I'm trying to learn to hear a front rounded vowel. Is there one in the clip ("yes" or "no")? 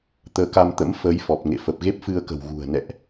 no